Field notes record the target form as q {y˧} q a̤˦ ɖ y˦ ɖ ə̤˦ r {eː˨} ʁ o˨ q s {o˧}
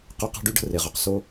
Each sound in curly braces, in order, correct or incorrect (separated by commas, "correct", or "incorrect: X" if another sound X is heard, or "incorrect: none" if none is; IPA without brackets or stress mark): correct, incorrect: e˨, correct